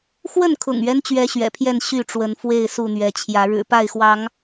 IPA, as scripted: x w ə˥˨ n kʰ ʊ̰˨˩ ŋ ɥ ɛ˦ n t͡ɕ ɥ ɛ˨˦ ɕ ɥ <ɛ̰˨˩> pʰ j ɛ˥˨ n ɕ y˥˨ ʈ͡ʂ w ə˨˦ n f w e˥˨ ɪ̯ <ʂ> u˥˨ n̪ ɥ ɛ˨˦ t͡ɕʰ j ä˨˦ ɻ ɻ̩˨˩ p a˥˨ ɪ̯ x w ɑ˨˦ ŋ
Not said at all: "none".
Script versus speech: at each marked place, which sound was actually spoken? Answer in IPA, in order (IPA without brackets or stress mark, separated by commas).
ɛ̰˨˩, s